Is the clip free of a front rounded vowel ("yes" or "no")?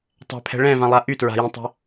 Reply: no